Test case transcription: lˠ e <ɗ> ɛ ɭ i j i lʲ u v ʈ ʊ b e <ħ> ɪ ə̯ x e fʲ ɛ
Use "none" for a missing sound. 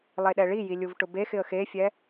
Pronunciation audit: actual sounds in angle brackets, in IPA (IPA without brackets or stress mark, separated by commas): ɗ, x